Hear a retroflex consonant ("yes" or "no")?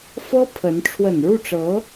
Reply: yes